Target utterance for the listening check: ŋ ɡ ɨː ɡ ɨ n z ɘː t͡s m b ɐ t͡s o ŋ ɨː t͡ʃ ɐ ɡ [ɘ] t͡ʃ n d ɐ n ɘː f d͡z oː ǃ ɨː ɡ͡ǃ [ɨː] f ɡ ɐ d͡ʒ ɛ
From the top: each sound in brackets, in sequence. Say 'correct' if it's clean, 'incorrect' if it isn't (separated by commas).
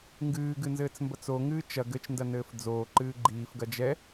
correct, incorrect